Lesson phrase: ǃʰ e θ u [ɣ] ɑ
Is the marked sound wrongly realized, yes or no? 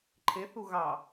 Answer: no